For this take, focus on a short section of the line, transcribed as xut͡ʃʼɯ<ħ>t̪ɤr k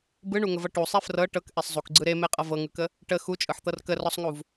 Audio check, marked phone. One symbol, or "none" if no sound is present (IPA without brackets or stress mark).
ħ